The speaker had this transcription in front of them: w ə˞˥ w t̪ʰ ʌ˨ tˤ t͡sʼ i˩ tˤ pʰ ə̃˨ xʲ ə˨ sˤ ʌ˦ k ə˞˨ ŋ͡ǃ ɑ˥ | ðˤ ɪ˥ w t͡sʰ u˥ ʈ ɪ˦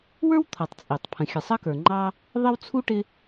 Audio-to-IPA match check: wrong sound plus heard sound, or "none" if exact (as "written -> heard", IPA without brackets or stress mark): none